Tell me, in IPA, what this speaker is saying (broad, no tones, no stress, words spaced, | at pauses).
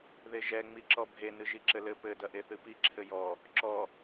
ðeʒɛ ŋ͡miǁɔbʱe nɨʒiǁɘlɘ pɘ dɐʔeθɨpi ǁʰɘjɔ | ǁɔ